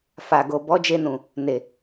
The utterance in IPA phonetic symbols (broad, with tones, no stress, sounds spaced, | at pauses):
f a˨ ɡ o˨ b ɔ˨˦ d͡ʒ e˧ n ũ˨ | n e˨